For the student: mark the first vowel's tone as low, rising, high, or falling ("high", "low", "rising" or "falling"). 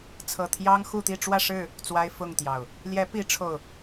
low